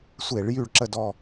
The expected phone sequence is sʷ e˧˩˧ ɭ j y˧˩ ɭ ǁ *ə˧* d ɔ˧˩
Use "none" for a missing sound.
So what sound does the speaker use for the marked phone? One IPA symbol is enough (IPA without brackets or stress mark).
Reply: ə˧˩